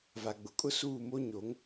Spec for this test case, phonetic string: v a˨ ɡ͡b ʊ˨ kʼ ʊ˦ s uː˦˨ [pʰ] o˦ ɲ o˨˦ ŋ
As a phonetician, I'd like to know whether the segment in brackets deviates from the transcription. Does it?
yes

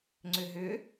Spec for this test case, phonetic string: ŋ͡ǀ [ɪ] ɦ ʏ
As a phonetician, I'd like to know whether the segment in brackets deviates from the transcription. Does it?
yes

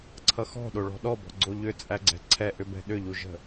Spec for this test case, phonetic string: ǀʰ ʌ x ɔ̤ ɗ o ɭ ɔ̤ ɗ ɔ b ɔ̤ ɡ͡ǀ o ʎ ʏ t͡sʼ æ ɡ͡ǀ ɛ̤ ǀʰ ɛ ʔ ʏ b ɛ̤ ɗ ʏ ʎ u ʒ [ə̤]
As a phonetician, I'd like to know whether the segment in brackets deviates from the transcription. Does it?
no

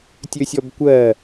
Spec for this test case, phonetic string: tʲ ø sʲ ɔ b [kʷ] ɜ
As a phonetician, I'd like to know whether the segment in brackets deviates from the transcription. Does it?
no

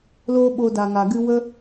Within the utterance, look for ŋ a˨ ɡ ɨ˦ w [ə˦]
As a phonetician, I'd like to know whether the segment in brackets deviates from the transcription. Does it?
no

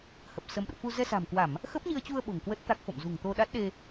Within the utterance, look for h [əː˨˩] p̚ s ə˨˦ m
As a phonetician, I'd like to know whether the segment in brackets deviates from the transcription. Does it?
yes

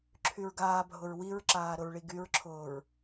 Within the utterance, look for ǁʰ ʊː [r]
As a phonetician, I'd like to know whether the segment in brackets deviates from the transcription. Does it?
yes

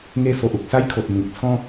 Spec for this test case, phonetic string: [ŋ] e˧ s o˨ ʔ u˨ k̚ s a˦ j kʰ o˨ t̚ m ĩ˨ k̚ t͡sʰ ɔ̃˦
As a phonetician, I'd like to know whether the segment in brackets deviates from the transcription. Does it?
no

